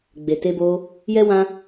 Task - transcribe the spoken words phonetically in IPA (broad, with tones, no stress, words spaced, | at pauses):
ɡ͡be˨te˧bo˧ | jɛ˦wã˦